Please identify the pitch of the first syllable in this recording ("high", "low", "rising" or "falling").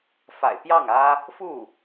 low